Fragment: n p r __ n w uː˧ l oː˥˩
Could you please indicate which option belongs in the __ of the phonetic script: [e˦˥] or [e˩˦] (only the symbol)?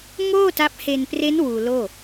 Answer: e˦˥